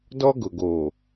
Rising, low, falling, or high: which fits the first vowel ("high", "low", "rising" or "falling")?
high